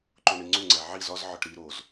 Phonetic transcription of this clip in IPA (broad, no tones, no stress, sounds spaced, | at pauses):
ǃ o ɳ i ŋ͡ǀ u ŋ͡ǀ æ ʕ i z ɒ z ʕ ɒ ʈ ɾ i ɾ o z